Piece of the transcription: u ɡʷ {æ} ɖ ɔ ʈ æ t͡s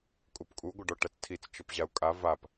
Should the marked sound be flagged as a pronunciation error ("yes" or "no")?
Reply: yes